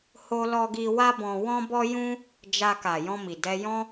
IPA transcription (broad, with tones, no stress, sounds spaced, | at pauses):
h o˧ l ɔ˧ ɡ i˧ w a˦ b ɔ̃˧ w ɔ̃˦ b ɔ˦ j ũ˦ | d͡ʒ a˧ k a˨ j ɔ̃˧ m i˨ d ɛ˧ j ɔ̃˦